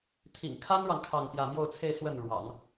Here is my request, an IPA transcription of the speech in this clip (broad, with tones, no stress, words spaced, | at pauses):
t̪ʰḭ˨˩ŋkʰa˥nɻɑ˨ŋ kʰɑ˥˧ŋ pjä˥˧ mjo˥˧ʊ̯t͡sʰe˥˧ɪ̯ swə˥˩nɻwɑ̰˨˩˦ŋ